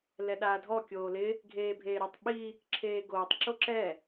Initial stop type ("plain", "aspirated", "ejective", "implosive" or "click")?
implosive